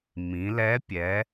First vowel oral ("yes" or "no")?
no